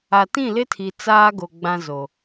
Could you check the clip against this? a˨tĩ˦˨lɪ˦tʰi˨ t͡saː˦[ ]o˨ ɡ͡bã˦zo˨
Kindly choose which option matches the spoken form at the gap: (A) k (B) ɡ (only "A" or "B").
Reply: B